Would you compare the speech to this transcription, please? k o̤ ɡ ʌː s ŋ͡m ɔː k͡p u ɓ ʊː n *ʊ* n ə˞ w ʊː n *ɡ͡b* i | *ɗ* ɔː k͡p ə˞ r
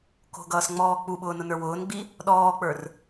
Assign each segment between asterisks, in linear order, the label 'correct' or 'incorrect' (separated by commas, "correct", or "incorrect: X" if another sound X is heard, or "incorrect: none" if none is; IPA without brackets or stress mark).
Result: correct, correct, correct